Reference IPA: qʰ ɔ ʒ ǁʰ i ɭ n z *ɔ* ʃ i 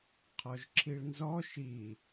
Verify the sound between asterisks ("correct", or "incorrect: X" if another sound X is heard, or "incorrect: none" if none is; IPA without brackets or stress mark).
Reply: correct